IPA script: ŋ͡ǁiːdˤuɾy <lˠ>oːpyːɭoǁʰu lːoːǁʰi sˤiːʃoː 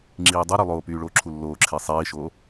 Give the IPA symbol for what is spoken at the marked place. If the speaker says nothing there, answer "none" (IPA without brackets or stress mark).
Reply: lˠ